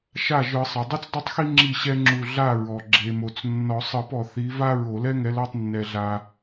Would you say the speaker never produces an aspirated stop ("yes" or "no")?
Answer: yes